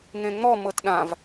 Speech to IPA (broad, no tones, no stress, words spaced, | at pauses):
ŋẽŋ͡mɔ mɤtɗãv